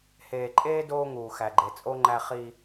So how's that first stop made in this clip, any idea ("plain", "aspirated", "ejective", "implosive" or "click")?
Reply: click